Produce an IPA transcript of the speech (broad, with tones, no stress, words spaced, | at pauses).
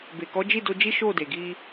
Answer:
be˨kɔ˨˦d͡ʒi˦˨ do˧d͡ʒi˦ ʃo˦˨de˨ɡi˧